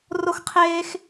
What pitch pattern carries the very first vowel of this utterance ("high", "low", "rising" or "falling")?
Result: high